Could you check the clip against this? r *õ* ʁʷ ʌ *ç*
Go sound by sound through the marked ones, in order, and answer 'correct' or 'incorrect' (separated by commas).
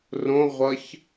correct, correct